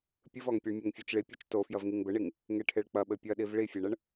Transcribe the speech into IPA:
pʲɨvɔŋpʲeɳ mʲɛŋfʲot͡ʃɭi pʲot͡ʃto fjɐvŋiŋbɘɳiŋ | ŋeʈʰeɭk͡pɐ ɓɘpʲɐɗiv ɭifʲeɳɐɳ

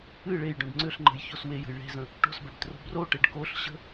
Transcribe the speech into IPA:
ɨ ɭejɖõɖ ŋ͡ǀʏɬŋ͡ǃə̤jços wejə̤j ɭe̤zə̃ | ʈo̤sbɛbtro̤ broʈeɖ koɬɕə̤

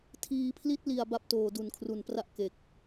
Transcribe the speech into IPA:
tʰiː˩˦pʰli˦˥t̚li˨˩a̯ ba˥˩p̚toː˨˩ du˨˩nkʰru˨˩npra˥˩ʔ ke˨˩k̚

